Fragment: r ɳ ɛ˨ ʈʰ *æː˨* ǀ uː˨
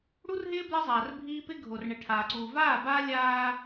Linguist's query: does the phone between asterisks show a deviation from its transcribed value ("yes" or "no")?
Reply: yes